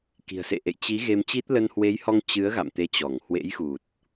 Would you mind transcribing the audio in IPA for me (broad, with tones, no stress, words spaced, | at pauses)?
ki̤˨˩ə̯sḛ˧˨ʔḛ˧˨j t͡ɕi˨˦ ɣe˧mt͡ɕi˦˥t̚ lə˧nhwe˨˦jhɔ˧ŋ t͡ɕɨ˨˦ə̯ɣa̰˧˨m t̪e˧t͡ɕɔ˧˩ŋ hwḛ˧˥jxu˨˩t̚